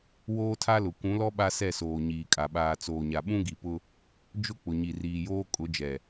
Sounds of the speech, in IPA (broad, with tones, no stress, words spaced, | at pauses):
woː˦tʰa˦lʊ˨ kʷũ˨˦lɔ˦ ɓa˦sɛ˦˨soː˨ ɲiː˨kʼa˨ ɓaː˨t͡soː˨ɲa˨ ɓũ˦ɡi˨pʊ˦ | d͡ʒʊ˦ k͡pʊ˨ɲi˨riː˨joː˦ kʼʊ˨˦d͡ʒɛ˨